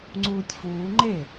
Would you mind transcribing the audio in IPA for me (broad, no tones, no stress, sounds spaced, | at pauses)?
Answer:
ŋ͡ǀ uː tʲ f uː ŋ͡ǃ e